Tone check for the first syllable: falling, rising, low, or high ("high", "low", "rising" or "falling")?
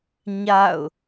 falling